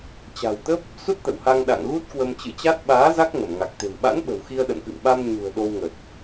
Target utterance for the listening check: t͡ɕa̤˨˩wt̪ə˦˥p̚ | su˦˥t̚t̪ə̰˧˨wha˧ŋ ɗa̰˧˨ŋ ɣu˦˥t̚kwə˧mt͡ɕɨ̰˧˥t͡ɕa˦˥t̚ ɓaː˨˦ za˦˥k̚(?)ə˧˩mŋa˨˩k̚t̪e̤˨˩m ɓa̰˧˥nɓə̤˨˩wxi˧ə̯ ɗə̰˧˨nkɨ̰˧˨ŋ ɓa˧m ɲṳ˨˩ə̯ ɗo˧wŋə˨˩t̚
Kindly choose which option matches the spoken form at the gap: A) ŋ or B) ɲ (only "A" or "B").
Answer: A